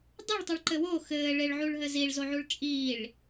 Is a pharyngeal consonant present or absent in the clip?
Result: present